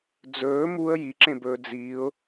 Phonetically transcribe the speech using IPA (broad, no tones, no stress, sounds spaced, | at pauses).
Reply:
d͡z ɵː m u ə̯ j i ǁ ẽ b ɵː d͡z iː ʊ̯